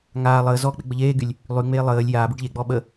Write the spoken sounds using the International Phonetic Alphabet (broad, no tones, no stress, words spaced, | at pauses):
ŋaː lˠəː zɔk͡pe ɡ͡bəʎeːɡylʲ | lˠyŋ͡meː lˠəːlʲ jaːbyɖ ʎeɡ͡bɔ ɓə